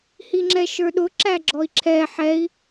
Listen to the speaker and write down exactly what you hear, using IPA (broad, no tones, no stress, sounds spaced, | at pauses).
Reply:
h i ŋ͡ǁ ɛ ʃ ə˞ ɗ ʊ ǁ æ ɡ͡ǁ ɔ i̯ ǁʰ ɛ ħ ɛ i̯